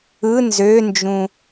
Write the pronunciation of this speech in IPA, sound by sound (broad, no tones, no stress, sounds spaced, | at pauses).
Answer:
ɯ n z ø n d͡ʒ ũ